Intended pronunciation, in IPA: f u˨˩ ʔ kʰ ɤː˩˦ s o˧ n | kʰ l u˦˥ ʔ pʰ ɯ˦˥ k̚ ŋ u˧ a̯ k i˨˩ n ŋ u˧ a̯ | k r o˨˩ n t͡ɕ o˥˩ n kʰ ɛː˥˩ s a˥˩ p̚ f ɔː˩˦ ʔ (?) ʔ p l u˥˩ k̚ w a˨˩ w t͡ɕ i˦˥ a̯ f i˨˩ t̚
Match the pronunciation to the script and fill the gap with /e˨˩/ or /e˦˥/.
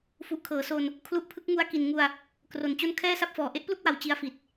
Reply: e˦˥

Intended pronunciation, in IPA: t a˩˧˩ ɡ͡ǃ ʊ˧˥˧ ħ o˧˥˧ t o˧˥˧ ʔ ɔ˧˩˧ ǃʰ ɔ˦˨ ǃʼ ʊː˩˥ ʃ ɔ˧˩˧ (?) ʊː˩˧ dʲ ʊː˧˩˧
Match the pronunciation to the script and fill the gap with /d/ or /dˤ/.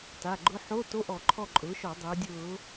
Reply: dˤ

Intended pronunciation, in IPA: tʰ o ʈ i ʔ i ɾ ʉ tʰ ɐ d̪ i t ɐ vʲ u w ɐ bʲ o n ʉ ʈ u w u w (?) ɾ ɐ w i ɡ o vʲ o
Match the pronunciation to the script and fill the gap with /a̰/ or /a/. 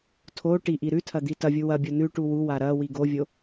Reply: a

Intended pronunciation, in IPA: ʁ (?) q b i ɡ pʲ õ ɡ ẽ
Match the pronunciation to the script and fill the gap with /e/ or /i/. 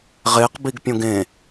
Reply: e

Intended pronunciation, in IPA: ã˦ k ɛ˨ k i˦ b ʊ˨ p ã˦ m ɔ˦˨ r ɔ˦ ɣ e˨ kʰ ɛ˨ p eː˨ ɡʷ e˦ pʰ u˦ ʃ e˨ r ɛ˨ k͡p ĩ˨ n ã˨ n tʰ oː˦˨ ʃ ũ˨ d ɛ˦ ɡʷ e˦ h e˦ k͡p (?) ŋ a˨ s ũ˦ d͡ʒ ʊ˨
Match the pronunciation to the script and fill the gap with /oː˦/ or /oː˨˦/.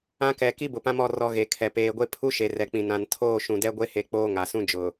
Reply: oː˦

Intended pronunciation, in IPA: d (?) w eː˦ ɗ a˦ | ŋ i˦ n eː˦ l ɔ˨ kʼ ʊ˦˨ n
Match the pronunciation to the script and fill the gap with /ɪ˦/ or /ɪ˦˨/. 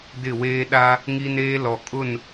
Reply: ɪ˦˨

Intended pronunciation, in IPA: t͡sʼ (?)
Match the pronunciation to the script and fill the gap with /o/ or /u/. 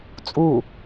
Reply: u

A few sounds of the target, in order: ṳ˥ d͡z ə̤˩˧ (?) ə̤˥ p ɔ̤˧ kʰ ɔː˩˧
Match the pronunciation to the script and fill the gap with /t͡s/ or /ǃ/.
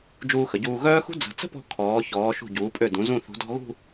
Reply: t͡s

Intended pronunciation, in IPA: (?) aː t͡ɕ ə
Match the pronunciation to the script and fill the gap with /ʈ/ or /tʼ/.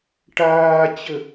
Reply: ʈ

